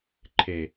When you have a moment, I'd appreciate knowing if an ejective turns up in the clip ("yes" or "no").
no